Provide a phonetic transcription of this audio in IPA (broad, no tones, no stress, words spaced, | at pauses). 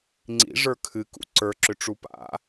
ŋ͡ǀḭʐə˞ kʰɨkṵ ǀə˞ǁʏʈ͡ʂu pa̰